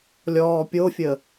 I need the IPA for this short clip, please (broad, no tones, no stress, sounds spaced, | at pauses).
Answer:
lʲ ɔː pʲ o fʲ ə